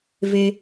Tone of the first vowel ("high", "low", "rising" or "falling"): high